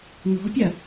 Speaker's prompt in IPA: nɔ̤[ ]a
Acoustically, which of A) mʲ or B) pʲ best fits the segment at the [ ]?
B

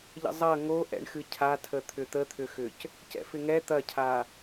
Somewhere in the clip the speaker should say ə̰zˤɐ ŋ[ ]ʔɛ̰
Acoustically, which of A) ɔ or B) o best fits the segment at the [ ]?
B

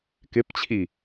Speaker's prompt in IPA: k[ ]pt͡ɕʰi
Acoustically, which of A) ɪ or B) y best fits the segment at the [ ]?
A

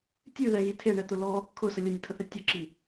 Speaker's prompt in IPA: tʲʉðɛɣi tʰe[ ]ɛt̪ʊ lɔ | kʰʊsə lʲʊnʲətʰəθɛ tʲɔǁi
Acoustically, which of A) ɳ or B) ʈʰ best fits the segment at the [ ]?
A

